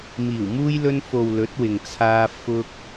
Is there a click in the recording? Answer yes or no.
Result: no